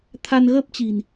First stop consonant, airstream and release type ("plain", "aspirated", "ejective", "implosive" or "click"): aspirated